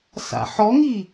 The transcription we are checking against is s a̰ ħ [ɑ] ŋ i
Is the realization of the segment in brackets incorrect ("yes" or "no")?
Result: yes